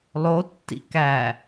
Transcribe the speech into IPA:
lˠotːḭ kæ

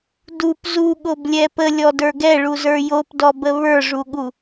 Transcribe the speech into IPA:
dup zuɠoblʲɛ pəlʲɔdə˞ ɡɛɭuzə˞ jopdɔbə βə˞ʐuɠu

